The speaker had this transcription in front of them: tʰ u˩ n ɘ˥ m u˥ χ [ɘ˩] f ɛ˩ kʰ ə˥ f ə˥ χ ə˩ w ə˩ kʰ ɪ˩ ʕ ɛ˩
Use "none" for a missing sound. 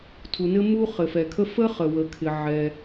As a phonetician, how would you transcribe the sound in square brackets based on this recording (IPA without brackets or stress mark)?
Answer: ɘ˩